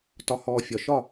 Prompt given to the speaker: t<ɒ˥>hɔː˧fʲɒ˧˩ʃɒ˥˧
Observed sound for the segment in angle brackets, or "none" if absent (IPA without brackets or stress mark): ɒ˧